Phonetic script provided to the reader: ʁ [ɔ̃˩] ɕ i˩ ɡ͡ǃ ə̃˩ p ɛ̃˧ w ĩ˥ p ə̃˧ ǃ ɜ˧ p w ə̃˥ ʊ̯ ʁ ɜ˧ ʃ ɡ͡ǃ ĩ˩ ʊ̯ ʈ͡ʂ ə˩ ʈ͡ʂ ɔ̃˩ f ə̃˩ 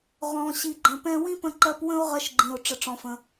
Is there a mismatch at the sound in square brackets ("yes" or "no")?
no